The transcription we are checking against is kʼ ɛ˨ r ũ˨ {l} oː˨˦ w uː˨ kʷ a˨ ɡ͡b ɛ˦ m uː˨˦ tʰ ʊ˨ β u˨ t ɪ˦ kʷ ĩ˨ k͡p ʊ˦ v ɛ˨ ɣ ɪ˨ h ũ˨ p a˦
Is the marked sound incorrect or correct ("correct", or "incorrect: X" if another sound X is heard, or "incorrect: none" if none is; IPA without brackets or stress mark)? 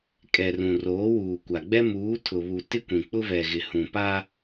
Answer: incorrect: r